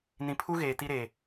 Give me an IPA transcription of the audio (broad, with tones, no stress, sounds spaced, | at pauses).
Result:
n ĩ˨ pʰ u˦ ɣ eː˨ t i˦ ɾ eː˨